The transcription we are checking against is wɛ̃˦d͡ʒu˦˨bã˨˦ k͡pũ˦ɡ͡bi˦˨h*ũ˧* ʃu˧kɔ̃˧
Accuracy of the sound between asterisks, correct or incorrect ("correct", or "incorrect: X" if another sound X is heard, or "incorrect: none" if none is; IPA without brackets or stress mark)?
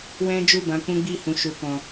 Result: correct